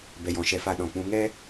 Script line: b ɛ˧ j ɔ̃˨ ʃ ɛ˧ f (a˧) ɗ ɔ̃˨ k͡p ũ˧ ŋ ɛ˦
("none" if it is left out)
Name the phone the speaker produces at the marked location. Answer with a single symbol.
a˧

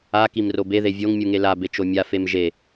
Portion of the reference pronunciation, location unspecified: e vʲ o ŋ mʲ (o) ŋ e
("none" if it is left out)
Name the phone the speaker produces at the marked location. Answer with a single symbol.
u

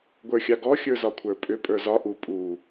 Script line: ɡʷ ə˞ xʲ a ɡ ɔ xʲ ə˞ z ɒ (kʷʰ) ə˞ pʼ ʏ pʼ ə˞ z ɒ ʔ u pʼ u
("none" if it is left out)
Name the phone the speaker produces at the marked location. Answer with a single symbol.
kʷʰ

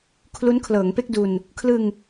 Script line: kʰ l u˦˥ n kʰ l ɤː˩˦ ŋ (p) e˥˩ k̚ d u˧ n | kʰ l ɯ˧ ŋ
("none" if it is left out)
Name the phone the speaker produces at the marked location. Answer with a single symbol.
p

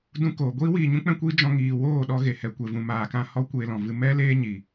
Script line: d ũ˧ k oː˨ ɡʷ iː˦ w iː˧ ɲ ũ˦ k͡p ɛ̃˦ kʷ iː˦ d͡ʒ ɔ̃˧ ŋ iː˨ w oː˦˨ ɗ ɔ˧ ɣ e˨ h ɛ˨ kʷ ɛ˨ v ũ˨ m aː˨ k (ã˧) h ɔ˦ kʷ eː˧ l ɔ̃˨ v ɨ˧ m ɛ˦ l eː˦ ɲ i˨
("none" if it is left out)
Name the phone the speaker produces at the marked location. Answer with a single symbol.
ã˧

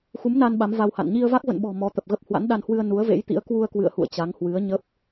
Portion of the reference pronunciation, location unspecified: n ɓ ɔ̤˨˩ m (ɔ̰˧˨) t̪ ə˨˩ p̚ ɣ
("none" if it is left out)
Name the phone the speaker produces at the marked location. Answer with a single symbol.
ɔ˨˦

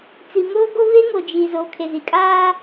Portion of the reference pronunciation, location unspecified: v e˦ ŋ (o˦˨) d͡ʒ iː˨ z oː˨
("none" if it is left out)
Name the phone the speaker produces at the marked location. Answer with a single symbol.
o˨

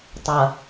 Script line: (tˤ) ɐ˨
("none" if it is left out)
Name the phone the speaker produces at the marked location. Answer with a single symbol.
tˤ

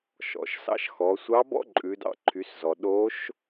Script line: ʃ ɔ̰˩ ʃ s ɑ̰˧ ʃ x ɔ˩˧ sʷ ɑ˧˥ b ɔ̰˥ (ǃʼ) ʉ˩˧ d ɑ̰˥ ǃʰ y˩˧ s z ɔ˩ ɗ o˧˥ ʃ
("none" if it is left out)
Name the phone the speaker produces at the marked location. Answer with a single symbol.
ǃʼ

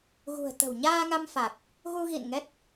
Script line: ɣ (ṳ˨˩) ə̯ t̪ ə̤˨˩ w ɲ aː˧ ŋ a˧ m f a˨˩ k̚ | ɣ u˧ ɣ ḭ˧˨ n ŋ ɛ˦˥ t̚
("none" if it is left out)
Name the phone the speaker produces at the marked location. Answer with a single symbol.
ṳ˨˩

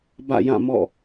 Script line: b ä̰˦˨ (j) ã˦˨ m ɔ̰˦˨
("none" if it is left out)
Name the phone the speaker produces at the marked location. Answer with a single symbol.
j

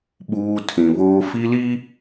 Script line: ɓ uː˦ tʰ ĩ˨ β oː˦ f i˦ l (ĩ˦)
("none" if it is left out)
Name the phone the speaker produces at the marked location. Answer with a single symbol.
i˦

